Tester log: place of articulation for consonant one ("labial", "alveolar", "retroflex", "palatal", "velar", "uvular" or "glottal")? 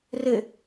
alveolar